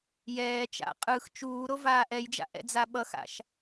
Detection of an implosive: present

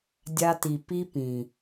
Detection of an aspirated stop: absent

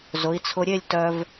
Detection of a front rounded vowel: present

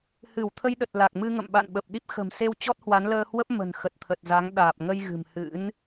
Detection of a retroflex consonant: absent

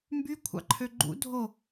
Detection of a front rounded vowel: present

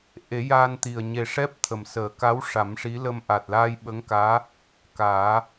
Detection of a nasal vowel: absent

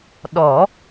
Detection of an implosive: present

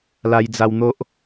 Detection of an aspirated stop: absent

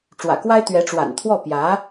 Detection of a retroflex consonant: present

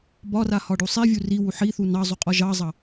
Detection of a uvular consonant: present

